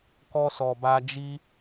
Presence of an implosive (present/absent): absent